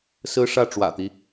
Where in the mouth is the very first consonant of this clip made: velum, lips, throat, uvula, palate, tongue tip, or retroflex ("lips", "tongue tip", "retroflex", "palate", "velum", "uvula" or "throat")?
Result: tongue tip